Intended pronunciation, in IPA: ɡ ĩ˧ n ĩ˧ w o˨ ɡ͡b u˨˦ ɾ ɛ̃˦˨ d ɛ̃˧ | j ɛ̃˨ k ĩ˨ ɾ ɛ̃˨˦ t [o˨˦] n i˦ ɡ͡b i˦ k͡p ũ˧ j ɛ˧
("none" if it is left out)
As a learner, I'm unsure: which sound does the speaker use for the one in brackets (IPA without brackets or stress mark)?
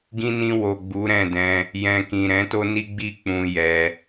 o˦